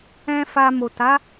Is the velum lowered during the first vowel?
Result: yes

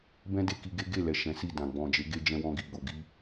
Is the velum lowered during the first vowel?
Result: yes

